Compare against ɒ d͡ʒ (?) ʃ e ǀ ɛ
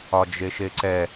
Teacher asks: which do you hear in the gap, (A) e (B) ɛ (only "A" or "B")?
A